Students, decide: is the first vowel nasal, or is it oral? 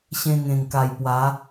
nasal